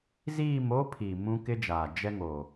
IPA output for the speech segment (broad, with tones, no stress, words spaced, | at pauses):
ziː˦˨mo˦pʰi˨ mũ˦kɪ˦d͡ʒaː˨ d͡ʒɛ˦ŋo˨